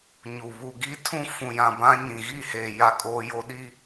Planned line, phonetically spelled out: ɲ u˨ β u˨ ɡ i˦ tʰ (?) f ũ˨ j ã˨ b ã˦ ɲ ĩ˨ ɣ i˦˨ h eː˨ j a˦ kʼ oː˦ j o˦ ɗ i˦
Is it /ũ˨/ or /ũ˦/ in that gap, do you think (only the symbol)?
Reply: ũ˦